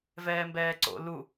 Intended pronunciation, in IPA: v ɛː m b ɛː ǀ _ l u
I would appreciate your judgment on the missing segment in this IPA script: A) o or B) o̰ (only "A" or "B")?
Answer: B